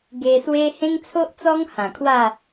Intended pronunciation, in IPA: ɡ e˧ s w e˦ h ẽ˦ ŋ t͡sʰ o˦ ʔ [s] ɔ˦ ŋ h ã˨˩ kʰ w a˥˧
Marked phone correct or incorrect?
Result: incorrect: t͡s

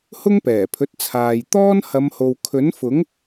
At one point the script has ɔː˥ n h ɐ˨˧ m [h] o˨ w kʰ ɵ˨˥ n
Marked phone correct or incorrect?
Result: correct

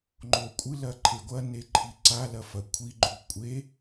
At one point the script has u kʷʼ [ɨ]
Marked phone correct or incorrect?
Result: incorrect: e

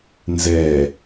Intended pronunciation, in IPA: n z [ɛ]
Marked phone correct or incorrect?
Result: correct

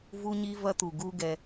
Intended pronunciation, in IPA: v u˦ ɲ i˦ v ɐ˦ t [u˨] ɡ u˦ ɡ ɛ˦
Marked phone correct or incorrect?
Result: correct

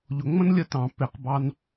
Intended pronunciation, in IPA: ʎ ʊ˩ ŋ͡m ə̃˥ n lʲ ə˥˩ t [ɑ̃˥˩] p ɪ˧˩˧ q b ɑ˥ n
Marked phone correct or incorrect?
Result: incorrect: ɑ̃˧˩˧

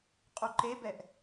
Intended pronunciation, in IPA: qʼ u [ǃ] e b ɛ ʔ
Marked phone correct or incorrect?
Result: correct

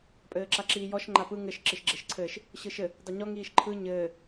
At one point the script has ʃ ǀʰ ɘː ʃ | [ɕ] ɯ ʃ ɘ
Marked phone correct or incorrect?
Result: correct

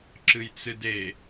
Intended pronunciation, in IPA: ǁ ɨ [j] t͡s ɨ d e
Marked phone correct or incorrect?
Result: correct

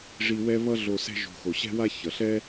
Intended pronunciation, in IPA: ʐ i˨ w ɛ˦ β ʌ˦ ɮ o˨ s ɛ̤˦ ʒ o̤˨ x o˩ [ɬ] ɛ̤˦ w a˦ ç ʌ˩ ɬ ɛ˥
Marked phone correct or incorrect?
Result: incorrect: ɕ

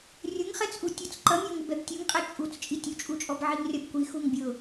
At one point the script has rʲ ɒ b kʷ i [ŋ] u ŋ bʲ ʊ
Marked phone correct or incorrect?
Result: incorrect: x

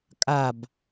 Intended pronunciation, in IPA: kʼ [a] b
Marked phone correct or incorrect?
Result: correct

